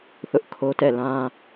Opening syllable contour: high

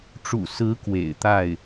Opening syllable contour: low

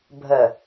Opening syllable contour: low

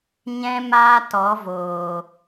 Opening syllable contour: high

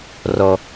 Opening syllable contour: low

